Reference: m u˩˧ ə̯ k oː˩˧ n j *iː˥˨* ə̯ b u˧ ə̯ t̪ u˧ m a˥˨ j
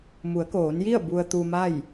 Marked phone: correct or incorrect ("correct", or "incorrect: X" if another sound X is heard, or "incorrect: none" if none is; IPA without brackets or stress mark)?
incorrect: i˥˨